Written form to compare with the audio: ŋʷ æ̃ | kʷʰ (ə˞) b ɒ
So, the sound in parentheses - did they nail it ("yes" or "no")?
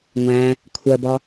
no